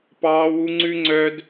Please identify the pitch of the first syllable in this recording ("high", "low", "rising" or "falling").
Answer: high